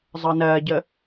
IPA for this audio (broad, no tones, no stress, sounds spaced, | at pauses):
zˤ ɤ n ɜ ɟ ə